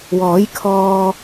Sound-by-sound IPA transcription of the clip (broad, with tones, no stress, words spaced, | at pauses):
wɔː˨˥j kʰɔː˧